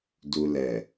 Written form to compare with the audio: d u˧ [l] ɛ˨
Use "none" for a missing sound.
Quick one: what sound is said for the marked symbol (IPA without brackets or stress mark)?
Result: l